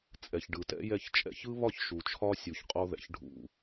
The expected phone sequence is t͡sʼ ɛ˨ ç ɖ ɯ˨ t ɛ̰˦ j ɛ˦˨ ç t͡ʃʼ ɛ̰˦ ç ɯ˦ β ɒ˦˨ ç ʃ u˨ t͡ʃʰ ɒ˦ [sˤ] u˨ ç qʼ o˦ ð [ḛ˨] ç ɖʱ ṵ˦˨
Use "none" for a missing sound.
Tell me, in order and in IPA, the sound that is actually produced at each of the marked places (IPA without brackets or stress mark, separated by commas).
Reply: sʲ, ɛ̰˨